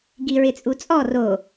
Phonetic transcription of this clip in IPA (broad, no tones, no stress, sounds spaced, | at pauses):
ɡ i ɹ ɪ t͡sʼ u t͡sʼ ɔ r o